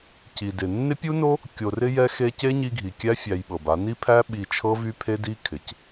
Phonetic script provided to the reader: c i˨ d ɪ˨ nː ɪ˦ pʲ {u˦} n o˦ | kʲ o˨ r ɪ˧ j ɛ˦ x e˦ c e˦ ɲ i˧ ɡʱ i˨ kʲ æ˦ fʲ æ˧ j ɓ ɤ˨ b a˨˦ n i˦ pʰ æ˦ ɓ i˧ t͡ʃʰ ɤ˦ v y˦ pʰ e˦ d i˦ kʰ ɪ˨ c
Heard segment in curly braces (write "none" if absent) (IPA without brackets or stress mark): u˦